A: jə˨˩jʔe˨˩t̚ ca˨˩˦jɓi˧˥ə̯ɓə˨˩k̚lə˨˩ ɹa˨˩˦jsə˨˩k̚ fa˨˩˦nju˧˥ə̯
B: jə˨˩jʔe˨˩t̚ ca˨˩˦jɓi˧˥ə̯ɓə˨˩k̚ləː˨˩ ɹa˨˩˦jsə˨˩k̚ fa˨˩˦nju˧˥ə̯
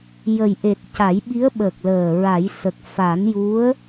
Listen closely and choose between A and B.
B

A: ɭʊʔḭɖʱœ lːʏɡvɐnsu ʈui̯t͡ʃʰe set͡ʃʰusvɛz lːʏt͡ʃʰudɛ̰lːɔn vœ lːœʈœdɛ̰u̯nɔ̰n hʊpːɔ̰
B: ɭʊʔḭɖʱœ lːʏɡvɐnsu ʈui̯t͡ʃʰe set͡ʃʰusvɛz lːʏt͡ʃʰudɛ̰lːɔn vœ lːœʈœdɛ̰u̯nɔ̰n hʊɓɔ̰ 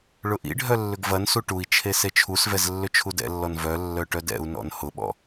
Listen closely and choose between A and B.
B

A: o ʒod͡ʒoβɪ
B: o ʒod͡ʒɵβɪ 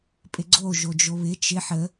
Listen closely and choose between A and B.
A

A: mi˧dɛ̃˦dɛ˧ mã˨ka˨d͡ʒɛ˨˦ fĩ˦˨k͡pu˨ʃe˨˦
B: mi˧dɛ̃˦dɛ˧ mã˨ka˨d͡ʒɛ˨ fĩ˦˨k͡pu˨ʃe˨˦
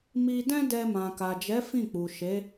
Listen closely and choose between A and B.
A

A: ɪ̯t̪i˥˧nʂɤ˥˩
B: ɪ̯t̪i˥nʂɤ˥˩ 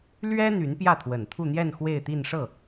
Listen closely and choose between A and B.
A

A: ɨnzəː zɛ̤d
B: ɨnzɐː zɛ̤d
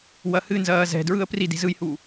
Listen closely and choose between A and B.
B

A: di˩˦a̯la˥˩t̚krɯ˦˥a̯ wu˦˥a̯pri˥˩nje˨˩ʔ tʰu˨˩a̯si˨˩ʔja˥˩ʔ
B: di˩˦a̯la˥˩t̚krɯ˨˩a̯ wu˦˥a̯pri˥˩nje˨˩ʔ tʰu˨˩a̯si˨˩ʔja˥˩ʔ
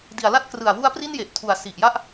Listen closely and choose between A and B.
B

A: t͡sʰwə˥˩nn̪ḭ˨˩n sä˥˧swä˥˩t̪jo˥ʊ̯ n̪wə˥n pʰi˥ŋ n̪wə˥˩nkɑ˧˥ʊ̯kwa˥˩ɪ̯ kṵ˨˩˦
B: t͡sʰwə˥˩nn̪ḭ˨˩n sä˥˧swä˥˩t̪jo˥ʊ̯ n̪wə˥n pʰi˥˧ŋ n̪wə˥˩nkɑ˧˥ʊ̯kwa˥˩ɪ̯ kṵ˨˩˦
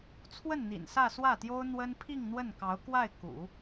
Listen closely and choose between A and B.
B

